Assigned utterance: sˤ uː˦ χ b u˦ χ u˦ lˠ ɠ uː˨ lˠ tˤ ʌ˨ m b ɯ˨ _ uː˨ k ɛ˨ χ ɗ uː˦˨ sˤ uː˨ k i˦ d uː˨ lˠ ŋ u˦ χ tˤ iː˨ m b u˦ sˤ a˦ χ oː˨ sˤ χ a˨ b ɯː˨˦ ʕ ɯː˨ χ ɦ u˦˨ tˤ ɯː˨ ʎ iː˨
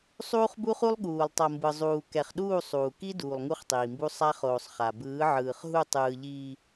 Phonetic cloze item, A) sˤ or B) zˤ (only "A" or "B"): B